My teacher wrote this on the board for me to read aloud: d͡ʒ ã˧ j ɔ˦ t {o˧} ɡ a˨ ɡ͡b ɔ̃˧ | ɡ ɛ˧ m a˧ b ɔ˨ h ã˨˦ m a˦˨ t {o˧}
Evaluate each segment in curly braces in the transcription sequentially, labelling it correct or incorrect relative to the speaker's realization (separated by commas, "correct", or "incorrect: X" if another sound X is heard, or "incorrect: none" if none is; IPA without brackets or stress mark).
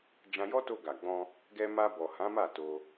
correct, correct